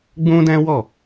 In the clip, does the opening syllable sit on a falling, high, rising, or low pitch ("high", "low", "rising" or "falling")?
high